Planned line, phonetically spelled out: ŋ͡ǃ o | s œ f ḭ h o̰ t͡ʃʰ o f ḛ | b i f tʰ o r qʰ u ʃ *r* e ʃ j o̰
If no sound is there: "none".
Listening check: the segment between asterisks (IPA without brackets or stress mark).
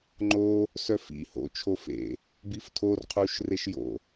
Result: r